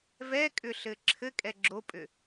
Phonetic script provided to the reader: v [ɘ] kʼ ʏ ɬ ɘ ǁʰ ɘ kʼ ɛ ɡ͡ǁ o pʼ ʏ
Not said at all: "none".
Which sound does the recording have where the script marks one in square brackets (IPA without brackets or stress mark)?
ɛ